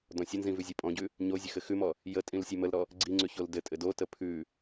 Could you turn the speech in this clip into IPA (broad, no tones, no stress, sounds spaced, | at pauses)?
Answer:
d ɔ̃ sʲ ə n z ĩ v ʉ zʲ o pʼ ɔ̃ ɟ ʉ | ɲ o zʲ ə x ɘ x ʉ m ɔ | j ə tʼ ĩ l sʲ ʉ m ə l ɾ ɔ | ɡ͡ǀ i ŋ͡ǀ ʉ ç o l d ɘ tʼ ɘ d o t ə pʰ ʉ